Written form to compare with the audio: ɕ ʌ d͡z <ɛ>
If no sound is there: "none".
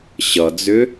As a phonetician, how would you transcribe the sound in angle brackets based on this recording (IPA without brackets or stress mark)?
ʏ